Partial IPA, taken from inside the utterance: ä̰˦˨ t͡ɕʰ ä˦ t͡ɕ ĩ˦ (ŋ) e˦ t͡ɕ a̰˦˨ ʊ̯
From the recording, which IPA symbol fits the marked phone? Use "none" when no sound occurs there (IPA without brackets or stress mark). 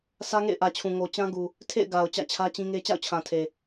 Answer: ŋ